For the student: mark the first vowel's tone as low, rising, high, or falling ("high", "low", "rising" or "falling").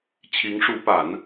rising